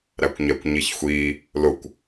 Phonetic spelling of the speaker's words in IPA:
ɾækʷɲɛkʷɲiçxʷi | lʊkʷ

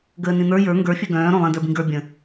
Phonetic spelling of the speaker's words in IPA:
ɡəːnĩn̪ə˞ jə˞ ŋɡə˞ fʲœɡœ̃ː ɾõlˠĩ də˞bĩɡə˞ bʲə̃

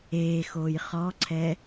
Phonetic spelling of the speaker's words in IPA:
eːxoːj χɔǀʰɛ

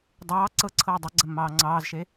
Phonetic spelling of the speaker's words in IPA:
dˤɑː ǀɤǀʰɤː dˤɐɡ͡ǀɐmːɑː ŋ͡ǀɑːzʃe

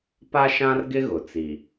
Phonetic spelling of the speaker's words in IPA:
pa˦ʃã˦rɡɪ˦ ɣʊ˨t͡si˨

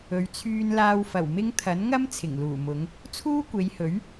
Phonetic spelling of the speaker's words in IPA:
ɵ˨˧ɥt͡sʰyː˧nlaː˧w fɐ˨˩w mɪ˥ŋ t̪ʰɐ˨˥nŋɐ˥m t͡sʰɪ˨˩ŋluː˨˩mʊ˨˧ŋ | t͡sʰuː˥kʷe˨˧jhɵ˨˥ɥ

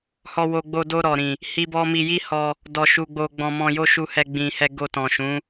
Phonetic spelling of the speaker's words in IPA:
hɔ˧wo˧ɡ͡bo˧ do˧ɾɔ˨ɾĩ˨ | hi˦bɔ˦ mi˧ji˦hɔ˧ | dɔ˧ʃu˧ɡ͡bo˧ ɡ͡bɔ̃˧mɔ̃˧jo˦ʃu˧ hɛ˧ɡ͡bĩ˨ hɛ˧ɡo˧tɔ̃˨ʃũ˨˦

